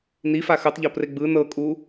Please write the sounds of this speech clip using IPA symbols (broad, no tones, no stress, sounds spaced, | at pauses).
n i f a x ɯ tˤ ʎ ɔ p r e ɡ͡b ɯ n ɤ kʼ u